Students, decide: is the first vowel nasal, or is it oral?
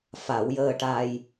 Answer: oral